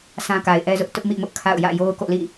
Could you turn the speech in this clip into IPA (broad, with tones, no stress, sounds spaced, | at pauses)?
sʰ ã˦ k a˨ ɪ̯ ʔ ɛ˦ z ʊ˦ ʔ t ʊ˦ ʔ m ḭ˦˨ m ʊ˦ ʔ kʰ a̰˦˨ ʊ̯ j ä̰˦˨ j o˦ ʊ̯ k o̰˦˨ l ḭ˦˨